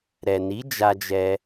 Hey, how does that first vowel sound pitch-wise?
low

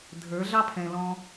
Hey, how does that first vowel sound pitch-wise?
rising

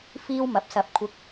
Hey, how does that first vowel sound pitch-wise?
high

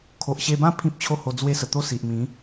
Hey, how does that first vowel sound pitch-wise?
low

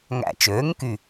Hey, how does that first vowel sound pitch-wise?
low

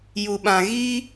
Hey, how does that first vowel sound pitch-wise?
low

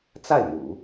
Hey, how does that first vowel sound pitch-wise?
falling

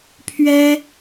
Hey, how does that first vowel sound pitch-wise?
high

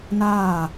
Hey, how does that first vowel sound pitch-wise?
falling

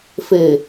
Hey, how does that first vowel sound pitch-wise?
low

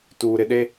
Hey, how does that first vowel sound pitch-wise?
low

